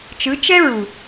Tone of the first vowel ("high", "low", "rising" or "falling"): rising